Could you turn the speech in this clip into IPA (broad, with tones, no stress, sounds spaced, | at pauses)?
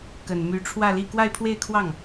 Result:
k ə˨˩ n m y˧˥ ʈ͡ʂʰ w ä˥˧ l i˥˧ k w a˥˧ ɪ̯ pʰ w e˥˧ ɪ̯ kʰ w ɑ˥˩ ŋ